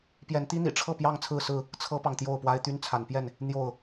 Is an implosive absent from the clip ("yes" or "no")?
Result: yes